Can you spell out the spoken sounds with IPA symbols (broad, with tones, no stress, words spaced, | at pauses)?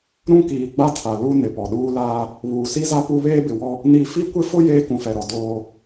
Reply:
ɾũ˦kiː˨ ɡ͡ba˦tʰa˨ lu˦ nɪ˨pɔ˨ɗuː˦laː˦ | βuː˨si˦za˦ pu˦βeː˦bɪ˨wɔ˦ | ni˦˨ fi˦kʷɪ˦fʊ˦ jeː˦kũ˨fɛ˨ɾɔ˨ doː˦